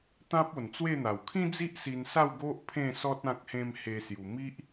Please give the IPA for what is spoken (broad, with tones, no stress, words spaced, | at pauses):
t̪ã˦p̚o˨˩nt͡swe˥˧n̪a˨˩w kʰĩ˦d͡zi˦ʔ si˧nsa˥˧wɡo˦ʔ pʰẽ˥˧sɔ˦t̚ ã˦k̚hẽ˦m he˧ sju˧ mi˦ʔ